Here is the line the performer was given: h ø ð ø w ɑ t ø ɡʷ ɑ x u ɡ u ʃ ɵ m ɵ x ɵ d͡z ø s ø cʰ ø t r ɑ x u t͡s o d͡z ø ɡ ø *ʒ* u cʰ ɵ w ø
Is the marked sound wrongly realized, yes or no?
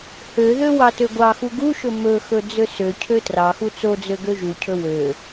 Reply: no